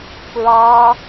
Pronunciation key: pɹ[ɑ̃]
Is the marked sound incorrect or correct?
incorrect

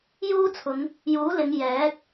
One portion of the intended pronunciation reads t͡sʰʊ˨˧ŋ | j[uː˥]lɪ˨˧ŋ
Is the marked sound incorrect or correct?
incorrect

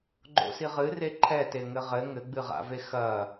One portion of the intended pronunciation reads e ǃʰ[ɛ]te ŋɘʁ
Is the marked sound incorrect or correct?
correct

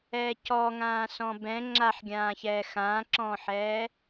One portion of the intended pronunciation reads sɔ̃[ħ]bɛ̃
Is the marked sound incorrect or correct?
incorrect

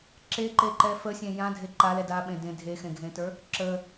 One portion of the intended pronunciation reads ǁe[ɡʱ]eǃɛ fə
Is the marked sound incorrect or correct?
incorrect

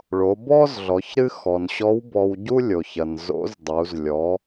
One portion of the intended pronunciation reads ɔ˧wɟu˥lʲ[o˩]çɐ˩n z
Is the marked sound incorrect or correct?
correct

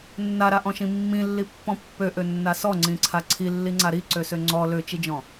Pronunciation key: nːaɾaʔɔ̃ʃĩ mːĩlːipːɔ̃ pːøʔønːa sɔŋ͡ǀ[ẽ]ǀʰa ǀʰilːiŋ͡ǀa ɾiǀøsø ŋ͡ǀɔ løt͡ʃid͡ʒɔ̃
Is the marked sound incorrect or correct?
incorrect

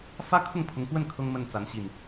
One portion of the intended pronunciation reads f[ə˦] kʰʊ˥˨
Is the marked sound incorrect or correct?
incorrect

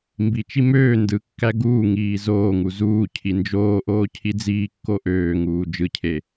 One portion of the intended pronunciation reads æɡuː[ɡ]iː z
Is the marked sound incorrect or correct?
incorrect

